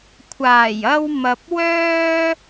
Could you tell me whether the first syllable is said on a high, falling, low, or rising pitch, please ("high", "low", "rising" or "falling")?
low